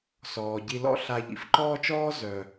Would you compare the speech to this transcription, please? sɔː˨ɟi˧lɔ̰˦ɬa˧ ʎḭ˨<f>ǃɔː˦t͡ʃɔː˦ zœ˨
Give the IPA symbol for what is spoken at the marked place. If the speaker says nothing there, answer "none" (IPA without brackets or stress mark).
f